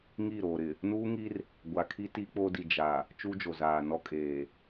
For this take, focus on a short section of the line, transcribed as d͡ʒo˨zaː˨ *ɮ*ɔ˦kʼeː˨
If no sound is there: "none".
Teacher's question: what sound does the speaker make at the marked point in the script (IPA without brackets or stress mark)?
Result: n